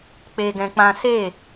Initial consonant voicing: voiceless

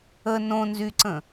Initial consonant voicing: voiced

